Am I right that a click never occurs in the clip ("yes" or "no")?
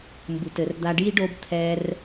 yes